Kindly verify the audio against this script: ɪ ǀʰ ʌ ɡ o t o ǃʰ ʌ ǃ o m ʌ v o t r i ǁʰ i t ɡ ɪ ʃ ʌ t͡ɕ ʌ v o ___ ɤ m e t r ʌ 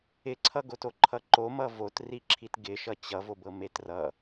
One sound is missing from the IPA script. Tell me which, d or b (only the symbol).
b